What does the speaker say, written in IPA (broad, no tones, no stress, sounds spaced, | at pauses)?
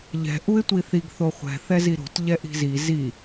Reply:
ʎ ɛ̤ ʔ u ɪ̯ tʷ i θ i ɡ θ o χʷ ɛ̤ θ ɛ z i ɾ o̤ t ʎ ɛ ʔ i̤ z i z i